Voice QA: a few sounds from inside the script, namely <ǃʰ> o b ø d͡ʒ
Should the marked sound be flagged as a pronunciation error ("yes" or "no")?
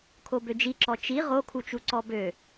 yes